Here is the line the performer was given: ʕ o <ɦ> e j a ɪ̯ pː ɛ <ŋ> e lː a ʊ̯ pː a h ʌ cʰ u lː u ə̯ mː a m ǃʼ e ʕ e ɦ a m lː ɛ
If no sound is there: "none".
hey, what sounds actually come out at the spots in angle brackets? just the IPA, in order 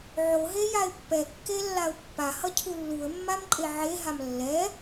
ɦ, kː

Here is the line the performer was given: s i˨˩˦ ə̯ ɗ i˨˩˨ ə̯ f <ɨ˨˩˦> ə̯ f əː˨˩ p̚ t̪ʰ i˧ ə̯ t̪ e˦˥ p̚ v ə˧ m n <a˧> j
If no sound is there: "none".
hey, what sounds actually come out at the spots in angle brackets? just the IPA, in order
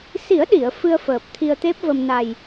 ɨ˧, a˨˩

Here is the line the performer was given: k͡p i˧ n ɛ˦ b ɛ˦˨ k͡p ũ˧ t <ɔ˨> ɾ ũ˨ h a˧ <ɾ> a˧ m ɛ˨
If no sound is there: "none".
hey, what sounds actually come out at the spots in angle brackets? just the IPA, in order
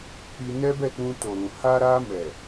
o˨, ɾ

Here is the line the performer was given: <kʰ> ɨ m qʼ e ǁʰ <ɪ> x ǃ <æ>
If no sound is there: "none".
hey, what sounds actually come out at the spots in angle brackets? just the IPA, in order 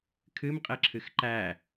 kʰ, ɨ, æ

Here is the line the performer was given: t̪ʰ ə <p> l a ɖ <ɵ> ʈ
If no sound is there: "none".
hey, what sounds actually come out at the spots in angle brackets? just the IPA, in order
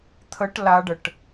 ʈ, ə

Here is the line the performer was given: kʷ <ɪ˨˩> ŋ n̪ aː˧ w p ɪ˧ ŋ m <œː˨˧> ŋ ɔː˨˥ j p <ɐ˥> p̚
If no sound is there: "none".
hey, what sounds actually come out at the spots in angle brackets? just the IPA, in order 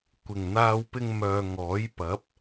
ɪ˨˩, œː˨, ɐ˨˥

